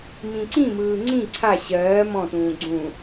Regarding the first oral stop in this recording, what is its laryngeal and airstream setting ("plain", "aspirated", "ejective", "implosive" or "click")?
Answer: click